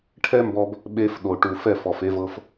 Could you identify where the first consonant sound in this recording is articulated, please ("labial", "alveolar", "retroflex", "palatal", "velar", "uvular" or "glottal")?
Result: retroflex